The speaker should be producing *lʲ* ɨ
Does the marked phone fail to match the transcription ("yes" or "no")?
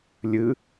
no